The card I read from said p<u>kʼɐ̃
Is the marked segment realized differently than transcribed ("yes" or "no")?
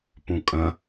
yes